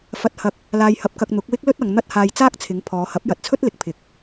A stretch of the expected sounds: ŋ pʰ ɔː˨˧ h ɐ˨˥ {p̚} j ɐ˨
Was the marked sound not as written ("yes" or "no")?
no